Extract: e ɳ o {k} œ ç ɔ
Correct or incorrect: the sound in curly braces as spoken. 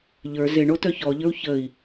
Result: incorrect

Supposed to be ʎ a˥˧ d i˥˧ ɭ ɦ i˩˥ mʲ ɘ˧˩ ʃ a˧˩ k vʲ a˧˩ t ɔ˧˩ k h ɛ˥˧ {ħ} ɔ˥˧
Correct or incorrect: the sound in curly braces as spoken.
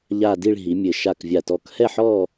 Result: correct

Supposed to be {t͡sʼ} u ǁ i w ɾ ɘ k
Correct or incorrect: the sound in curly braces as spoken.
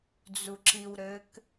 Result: incorrect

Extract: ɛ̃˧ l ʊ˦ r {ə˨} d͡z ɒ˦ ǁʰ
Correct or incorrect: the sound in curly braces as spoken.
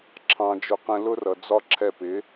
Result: incorrect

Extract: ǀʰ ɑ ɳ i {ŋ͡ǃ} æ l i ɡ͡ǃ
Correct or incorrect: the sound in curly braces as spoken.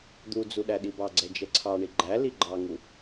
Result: incorrect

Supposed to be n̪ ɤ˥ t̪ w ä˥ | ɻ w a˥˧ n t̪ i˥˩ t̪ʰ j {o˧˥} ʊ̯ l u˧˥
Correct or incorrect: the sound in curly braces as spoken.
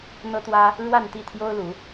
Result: incorrect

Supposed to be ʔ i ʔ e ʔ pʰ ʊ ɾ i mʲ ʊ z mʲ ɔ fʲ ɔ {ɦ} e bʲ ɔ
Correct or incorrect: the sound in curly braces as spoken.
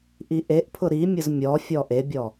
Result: incorrect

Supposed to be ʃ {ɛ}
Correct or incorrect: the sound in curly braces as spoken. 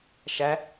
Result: incorrect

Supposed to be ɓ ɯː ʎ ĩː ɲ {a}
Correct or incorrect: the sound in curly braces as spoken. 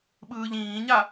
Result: correct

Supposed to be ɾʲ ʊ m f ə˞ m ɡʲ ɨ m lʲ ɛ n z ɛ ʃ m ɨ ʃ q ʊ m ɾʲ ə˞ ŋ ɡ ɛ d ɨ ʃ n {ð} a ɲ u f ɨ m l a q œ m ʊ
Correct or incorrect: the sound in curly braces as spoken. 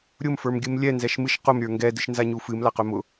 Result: incorrect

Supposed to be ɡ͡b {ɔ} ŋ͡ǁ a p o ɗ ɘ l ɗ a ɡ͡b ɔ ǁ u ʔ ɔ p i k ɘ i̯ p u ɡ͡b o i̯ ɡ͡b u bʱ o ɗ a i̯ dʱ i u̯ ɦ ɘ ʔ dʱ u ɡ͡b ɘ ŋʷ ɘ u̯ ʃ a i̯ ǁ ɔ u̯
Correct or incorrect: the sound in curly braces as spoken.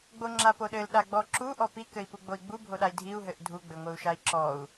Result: incorrect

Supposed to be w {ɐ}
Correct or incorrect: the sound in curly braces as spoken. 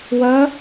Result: correct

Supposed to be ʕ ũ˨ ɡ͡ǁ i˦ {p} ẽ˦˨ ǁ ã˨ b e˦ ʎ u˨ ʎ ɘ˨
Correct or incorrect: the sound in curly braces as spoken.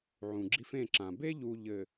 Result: incorrect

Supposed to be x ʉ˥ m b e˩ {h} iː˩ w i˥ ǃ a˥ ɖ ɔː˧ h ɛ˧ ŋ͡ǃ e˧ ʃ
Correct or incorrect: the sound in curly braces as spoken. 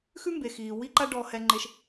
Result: incorrect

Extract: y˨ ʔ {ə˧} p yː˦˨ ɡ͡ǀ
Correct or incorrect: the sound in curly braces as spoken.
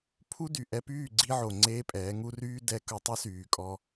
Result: incorrect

